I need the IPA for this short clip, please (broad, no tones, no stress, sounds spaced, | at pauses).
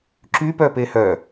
ǁ y p œ p e h œ